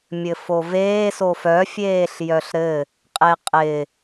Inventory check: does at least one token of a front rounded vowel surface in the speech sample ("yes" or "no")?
yes